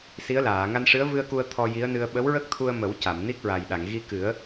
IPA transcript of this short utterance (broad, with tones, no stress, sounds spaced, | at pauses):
s i˧˥ ə̯ l aː˨˩˨ ŋ a˧ n ʂ ɨ˧˥ ə̯ v ɨ˧ ə̯ k u˧ ə̯ t̪ʰ ɔ˧ j i˧˥ ə̯ n ɨ˧ ə̯ ɓ ə˧˥ w ɹ ə˦˥ k̚ t̪ʰ u˧ ə̯ m ə˨˩˦ w c a˨˩˨ m n i˦˥ k̚ ɹ a˨˩ j ɗ a˨˩˨ ŋ ɣ i˧ k ɨ˨˩˦ ə̯